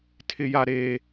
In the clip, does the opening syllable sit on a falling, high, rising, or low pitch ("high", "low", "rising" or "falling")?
high